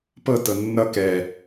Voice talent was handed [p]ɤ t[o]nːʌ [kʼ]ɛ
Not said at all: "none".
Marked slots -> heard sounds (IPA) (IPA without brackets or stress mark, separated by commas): p, ɤ, k